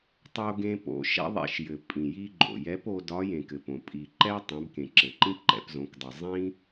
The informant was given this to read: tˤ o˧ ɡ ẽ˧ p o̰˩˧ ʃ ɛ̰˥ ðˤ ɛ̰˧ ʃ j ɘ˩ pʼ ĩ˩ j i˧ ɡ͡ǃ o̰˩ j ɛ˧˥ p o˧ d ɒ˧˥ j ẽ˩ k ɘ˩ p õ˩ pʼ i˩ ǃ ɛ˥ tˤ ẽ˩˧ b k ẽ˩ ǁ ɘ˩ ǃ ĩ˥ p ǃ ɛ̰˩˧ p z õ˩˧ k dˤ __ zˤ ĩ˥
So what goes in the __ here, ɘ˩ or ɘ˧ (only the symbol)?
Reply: ɘ˩